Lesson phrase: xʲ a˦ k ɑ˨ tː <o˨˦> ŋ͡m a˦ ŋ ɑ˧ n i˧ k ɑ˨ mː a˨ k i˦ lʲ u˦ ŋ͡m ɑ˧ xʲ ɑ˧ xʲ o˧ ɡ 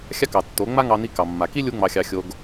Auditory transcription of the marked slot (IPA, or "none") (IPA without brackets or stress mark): o˨˦